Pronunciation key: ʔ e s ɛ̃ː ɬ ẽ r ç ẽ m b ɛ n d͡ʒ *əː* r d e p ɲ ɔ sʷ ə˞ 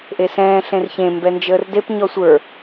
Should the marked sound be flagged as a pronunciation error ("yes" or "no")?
no